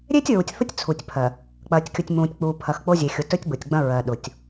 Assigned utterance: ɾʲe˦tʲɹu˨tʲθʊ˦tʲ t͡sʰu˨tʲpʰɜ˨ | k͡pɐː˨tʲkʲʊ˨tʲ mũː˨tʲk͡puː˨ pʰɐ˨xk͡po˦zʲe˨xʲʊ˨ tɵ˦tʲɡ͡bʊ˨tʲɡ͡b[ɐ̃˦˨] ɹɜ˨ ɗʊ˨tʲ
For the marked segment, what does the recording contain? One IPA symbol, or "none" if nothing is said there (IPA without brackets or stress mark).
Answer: ɐ̃˦